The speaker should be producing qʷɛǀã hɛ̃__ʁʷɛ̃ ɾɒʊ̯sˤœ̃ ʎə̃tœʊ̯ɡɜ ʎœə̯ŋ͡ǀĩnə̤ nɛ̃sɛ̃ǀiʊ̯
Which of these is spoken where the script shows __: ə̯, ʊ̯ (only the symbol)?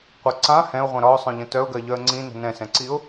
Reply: ʊ̯